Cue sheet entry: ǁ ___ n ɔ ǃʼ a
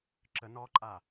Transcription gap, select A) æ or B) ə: B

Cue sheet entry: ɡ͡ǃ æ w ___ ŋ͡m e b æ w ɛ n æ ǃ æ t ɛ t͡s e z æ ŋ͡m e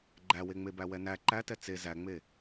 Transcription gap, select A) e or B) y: A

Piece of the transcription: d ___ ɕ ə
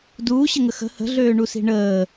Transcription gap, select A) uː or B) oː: A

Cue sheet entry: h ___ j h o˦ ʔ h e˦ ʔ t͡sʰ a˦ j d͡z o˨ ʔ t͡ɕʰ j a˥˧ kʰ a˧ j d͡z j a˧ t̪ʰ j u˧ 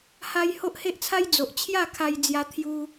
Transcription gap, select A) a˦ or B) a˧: A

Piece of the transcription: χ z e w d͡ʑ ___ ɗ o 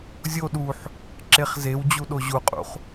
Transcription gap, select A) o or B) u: B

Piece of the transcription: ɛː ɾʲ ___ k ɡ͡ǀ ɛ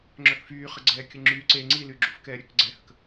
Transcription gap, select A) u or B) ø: B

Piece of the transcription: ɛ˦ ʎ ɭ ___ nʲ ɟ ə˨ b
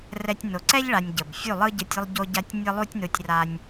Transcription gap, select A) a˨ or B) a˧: B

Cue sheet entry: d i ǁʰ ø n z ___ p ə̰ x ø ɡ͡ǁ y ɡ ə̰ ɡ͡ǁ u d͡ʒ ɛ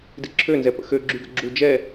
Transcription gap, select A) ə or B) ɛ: B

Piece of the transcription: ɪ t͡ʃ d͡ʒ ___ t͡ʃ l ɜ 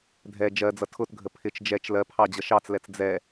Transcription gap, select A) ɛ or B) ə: A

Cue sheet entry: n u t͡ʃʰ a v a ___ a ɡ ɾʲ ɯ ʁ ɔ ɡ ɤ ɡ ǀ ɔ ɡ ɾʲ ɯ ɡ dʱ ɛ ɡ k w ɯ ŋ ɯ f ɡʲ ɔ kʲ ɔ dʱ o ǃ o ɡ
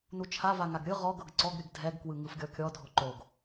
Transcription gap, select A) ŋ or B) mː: A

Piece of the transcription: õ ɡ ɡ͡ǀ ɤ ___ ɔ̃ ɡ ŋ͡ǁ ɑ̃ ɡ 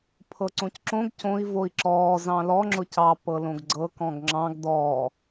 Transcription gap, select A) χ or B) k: B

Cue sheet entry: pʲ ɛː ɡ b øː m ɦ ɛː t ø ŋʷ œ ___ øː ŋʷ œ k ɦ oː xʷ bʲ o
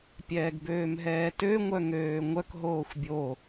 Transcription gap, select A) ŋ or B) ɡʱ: A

